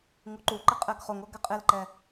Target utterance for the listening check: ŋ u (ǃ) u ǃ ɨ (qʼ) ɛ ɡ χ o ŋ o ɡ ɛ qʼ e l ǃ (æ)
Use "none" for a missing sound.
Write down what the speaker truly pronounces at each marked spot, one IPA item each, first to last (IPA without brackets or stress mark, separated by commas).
ǃ, qʼ, ɛ